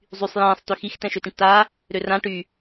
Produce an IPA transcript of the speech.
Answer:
zˤysˤ jɛ̃ːsˤ tøxix tɛ̃ʃøtĩʈtaː | ɾørã ʈy

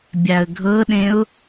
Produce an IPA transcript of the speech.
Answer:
bʲaə̯ɡʱɤɗẽʊ̯

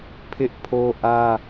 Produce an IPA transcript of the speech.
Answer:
pʰɪ˦ʔpʰo˦ʔä˦

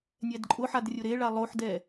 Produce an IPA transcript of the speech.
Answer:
nʲɛdǃʼʊħad rʲʊɾeɭa lˠoħdɛ

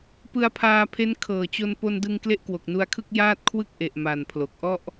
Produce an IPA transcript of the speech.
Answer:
pɯ˧a̯pʰaː˧pʰe˦˥n kʰɤː˨˩t͡ɕo˧n po˧ndɯ˧ŋ kle˥˩ʔkwo˨˩k̚nu˧a̯kʰɯ˥˩k̚ jaː˥˩t̚kʰwɯ˥˩k̚ʔe˨˩ʔ ma˨˩npʰlo˨˩k̚ ʔɔ˥˩ʔ

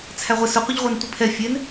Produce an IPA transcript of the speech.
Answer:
t͡sʰæʁʷɪ sʊqʷəʎʁʷɑn tʷipʰɛ fʲɛn

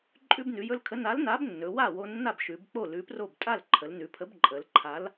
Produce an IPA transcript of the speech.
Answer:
ǃʼʉ˧bnʉ˩˧jɵ˧lkʰə˨˥ na˨˥lna˨˥bnːɵ˩˧ wa˥˩wo˧nːa˥˩bʃʉ˩˧b k͡po˥˩lʉ˨˥pro˥˩b tʼa˥˩lǃʰə˩˧lnʉ˩˧pʰə˨˥b ǃʼə˩˧lǃʰa˨˥l

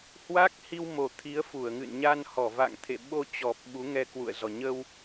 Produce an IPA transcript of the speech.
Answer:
hwa˦˥k̚hi˧wmo˨˩ t̪ʰi˨˦ə̯fu˧˩ə̯ŋɨ̰˧˨n ɲa˧nhɔ˧˩ va̰˧˨ŋt̪ʰḛ˧˨ɓo˧t͡ɕɔ˨˩p̚ ɓu˨˦ŋɛ˧kwṵ˧˨ə̯zɔ˨˩ ɲə˧w

